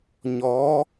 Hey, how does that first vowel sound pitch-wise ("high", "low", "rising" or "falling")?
rising